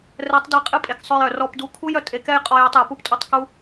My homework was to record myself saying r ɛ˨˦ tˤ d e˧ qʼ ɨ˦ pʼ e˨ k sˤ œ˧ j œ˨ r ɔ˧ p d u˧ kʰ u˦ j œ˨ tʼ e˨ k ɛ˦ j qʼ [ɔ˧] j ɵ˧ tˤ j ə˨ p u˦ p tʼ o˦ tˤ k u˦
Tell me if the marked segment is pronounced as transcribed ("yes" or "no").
yes